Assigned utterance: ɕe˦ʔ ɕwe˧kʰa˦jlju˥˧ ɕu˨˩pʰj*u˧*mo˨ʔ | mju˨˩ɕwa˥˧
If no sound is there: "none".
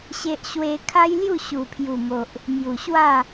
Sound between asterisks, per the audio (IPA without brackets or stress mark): u˨˩